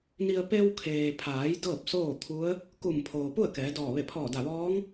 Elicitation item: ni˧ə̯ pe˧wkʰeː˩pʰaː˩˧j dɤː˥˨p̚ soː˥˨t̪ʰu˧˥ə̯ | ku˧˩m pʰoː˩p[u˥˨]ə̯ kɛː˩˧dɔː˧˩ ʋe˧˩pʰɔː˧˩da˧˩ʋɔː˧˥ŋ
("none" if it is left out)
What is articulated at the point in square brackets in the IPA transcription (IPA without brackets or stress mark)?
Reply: u˥˨